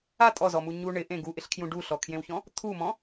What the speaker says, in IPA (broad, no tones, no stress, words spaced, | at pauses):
a tʼɔzɔmu ɲu ɳɪʔẽ ɡuʔɪɬkʰjũ ɖuɬɔkʰjẽwçɔ̃ | t̪ʰumɔ̃